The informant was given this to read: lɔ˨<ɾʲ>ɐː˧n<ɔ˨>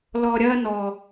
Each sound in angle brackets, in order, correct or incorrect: correct, correct

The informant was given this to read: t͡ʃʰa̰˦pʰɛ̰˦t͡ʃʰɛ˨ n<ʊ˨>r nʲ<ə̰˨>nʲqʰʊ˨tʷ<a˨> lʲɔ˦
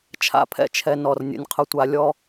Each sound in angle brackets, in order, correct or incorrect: incorrect: ɔ˨, correct, correct

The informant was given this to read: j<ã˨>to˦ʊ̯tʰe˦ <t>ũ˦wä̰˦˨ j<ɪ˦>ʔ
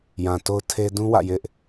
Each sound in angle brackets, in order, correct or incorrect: correct, incorrect: d, correct

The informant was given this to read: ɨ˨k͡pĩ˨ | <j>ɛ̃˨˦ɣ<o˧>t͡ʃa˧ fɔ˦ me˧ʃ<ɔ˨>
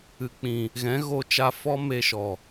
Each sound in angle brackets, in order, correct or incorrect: incorrect: ɣ, correct, correct

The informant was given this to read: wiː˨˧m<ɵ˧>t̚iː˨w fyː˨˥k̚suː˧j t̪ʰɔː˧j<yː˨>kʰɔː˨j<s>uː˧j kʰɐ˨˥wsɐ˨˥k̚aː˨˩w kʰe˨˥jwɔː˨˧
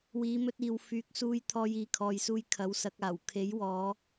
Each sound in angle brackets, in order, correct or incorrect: correct, incorrect: iː˨, correct

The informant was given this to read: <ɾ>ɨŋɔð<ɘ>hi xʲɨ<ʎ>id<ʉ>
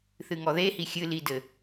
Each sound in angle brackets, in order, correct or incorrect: incorrect: θ, incorrect: e, incorrect: l, incorrect: ɘ

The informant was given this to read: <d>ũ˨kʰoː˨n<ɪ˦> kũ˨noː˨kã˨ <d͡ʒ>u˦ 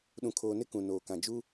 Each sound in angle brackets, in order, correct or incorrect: incorrect: ɗ, correct, correct

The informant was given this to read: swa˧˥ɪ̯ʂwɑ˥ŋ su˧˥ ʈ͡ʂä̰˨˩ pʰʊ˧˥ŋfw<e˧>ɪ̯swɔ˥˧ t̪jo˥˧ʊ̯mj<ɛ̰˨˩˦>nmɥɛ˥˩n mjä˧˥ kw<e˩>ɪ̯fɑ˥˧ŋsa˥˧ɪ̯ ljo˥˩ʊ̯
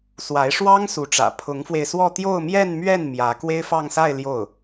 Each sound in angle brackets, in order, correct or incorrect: correct, incorrect: ɛ˥˧, incorrect: e˥

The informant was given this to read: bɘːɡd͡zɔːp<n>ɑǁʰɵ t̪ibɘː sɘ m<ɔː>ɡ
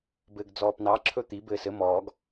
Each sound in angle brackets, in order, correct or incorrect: correct, correct

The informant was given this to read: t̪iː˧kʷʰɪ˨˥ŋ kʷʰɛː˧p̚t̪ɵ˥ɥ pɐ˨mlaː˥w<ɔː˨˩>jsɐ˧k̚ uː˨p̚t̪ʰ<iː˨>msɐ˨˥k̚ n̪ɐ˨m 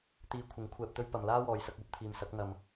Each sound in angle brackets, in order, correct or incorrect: incorrect: ɔː˨, correct

